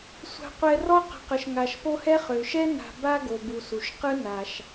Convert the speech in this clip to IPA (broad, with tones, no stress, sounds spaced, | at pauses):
sʷ a̤˨ qʷ ɛ˨ r ɔ˦ q ə̤˨ q ə˩ ʃ ŋ a˩ ʃ p o˦ h ɛ˥ χ ø˩ ʃ ɛ˥ n a̤˨ b a˦ ɡ o˨ b u˨ s u˩ ʃ q ɯ˥ n a˩ ʃ